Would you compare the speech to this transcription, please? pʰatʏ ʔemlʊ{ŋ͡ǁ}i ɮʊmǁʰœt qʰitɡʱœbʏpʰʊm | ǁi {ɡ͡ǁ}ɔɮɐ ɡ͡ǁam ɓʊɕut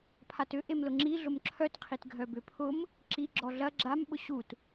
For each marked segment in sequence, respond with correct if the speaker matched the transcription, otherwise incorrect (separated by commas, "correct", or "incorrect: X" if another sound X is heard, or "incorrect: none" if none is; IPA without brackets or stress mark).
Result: correct, correct